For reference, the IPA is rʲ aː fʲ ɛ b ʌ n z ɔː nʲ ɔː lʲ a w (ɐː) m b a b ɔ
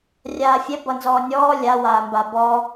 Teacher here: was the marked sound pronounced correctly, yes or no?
no